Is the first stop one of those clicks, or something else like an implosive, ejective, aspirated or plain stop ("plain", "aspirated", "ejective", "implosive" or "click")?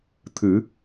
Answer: aspirated